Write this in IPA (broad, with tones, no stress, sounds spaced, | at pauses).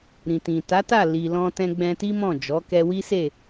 ɾ ĩ˨ t ĩ˨ t a˨˦ t a˦˨ l i˨ l ɔ̃˧ t ɛ̃˧ ɡ͡b ɛ̃˧ t i˦ m ɔ̃˦˨ d͡ʒ ɔ˨˦ k ɛ˧ w i˦ s e˦˨